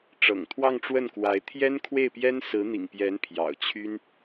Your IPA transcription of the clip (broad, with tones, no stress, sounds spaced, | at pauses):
ʈ͡ʂ ɤ̰˨˩ ŋ t̪ʰ w ɑ˥˧ ŋ ʈ͡ʂ w ə˥˩ n k w a˧˥ ɪ̯ t̪ʰ j ɛ˥ n kʰ w e˥˩ ɪ̯ p j ɛ˥ n s ɹ̩˧˥ n̪ ḭ˨˩ ŋ p j ɛ˧˥ n pʰ j ɑ̰˨˩ ʊ̯ t͡ɕʰ y˥ n